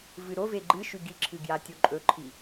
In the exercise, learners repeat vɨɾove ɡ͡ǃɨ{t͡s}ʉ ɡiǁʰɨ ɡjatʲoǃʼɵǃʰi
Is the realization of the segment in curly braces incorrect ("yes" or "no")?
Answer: yes